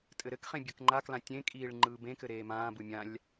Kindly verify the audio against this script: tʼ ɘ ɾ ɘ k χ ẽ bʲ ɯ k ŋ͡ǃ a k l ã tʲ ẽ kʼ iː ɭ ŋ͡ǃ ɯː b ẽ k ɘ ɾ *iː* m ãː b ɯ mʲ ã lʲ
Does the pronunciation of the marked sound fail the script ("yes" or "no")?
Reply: yes